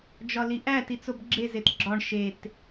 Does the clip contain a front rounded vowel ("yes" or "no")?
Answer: no